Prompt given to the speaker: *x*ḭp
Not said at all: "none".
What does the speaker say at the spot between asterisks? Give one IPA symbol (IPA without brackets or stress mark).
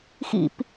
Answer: x